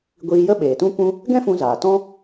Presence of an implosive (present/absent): present